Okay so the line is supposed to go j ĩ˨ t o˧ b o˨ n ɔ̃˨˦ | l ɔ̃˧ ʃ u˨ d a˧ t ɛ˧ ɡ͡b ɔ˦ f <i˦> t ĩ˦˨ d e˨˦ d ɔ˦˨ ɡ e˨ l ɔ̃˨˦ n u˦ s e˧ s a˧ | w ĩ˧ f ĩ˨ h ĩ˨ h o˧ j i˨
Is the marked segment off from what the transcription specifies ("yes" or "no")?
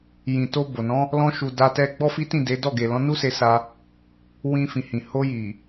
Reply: no